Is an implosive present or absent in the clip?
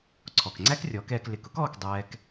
absent